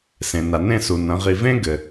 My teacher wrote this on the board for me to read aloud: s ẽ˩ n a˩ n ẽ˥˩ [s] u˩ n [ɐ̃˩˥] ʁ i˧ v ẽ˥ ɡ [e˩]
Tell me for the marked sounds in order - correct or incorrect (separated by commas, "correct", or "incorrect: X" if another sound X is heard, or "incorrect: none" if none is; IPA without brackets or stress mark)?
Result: correct, correct, incorrect: ɘ˩